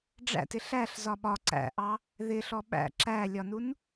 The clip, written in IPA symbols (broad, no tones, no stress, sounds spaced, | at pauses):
ɖ͡ʐ æ̰ t ɪ ɬ æ ɬ z ɒ ɓ ɒ ǀ æ̰ ʔ ɑ | ð ɪ ɬ ɔ ɓ æ̰ ǁ æ lʲ ɒ n u n